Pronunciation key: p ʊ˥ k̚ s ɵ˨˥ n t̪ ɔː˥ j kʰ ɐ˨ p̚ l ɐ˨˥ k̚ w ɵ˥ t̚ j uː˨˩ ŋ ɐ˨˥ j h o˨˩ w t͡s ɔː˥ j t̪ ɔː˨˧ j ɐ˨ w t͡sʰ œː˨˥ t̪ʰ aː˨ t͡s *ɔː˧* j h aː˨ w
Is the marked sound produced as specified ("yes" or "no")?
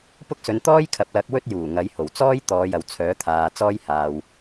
no